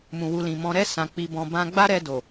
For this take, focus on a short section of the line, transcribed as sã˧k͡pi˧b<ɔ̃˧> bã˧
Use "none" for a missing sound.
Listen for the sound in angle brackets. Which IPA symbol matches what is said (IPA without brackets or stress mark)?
ɔ̃˧